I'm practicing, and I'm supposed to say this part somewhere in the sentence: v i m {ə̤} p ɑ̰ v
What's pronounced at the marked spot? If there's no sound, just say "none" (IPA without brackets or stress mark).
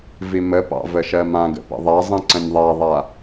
ə